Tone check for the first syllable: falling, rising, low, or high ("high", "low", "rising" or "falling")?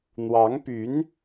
rising